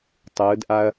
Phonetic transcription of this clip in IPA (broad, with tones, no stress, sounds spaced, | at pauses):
tˤ ɯː˩˧ d ʔ a˧ ɐ̯